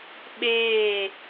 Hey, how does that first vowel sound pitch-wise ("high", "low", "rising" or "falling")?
falling